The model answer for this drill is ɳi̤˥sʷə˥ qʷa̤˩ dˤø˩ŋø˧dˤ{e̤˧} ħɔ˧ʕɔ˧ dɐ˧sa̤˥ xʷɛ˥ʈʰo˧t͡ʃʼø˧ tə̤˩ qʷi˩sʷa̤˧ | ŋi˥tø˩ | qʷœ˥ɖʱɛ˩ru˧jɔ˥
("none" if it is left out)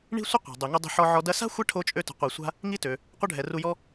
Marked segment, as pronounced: e̤˧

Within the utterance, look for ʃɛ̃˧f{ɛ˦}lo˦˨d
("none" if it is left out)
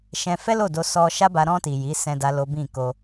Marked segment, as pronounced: ɛ˦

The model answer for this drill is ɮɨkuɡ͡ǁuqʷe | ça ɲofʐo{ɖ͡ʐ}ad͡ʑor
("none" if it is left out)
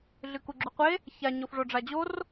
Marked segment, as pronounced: ɖ͡ʐ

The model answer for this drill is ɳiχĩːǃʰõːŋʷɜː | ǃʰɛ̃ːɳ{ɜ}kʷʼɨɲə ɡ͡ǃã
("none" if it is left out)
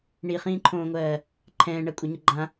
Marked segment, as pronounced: ɜ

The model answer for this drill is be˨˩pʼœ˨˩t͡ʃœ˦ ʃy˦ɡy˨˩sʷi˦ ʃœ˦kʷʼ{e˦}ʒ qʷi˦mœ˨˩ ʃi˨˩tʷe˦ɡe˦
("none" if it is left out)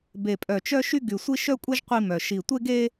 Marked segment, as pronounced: ɛ˦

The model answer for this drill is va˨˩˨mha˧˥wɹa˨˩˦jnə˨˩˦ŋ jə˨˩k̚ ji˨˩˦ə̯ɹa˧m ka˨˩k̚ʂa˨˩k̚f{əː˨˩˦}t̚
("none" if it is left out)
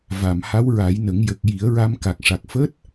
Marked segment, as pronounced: əː˦˥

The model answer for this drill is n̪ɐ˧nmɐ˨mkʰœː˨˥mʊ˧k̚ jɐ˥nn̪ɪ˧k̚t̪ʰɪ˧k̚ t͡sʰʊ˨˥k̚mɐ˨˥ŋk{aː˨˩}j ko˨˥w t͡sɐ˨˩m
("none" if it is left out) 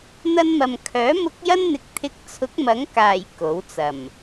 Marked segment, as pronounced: aː˨˩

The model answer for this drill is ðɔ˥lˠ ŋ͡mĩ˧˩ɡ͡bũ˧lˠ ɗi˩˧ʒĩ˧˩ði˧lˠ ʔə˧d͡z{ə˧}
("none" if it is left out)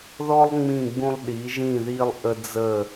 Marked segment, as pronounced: ə˧˩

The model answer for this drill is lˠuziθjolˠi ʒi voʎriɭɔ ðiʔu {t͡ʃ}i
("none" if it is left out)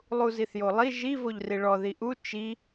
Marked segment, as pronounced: t͡ʃ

